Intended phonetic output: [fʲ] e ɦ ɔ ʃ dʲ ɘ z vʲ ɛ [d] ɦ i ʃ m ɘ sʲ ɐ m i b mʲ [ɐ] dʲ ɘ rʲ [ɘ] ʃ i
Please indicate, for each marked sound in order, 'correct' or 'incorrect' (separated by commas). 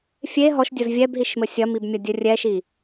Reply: correct, incorrect, correct, incorrect